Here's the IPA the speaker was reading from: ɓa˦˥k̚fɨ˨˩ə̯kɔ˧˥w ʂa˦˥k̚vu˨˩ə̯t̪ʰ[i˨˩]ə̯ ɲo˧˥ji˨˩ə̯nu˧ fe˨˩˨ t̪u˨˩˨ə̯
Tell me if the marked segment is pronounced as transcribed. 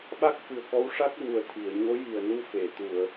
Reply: no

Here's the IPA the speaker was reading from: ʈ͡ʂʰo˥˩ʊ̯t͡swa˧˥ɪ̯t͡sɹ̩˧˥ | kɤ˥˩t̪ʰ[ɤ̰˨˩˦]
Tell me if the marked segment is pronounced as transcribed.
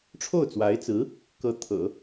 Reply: yes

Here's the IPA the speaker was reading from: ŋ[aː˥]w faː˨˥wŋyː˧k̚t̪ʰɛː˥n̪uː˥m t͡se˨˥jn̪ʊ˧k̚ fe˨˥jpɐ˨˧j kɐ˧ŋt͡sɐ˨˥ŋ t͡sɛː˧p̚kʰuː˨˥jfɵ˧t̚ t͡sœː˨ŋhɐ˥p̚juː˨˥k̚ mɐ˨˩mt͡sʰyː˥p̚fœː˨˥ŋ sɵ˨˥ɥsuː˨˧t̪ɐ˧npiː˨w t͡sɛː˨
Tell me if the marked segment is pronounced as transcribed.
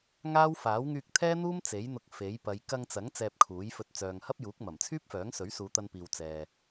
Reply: yes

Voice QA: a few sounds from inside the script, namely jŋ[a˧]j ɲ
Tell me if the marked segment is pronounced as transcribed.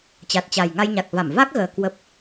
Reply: yes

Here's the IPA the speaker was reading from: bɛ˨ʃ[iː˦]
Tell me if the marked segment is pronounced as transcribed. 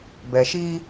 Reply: yes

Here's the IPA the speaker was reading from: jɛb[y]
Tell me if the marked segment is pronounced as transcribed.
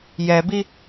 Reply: no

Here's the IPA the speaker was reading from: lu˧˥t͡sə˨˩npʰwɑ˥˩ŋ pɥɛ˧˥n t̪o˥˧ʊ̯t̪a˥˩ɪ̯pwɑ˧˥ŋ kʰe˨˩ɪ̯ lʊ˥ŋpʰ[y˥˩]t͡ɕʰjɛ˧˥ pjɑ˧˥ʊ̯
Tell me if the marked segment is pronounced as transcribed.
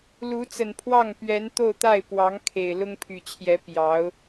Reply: no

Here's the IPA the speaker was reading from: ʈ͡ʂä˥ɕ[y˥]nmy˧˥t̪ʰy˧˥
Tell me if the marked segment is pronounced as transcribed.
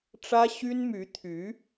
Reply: yes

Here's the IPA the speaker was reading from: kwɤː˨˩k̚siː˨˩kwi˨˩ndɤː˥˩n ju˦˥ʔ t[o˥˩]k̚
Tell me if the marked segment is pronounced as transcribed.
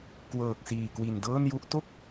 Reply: yes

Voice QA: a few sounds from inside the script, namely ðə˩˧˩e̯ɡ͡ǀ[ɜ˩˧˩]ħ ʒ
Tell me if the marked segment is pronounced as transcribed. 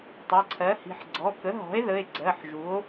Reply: yes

